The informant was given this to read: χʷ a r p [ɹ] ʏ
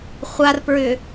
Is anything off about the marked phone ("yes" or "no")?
no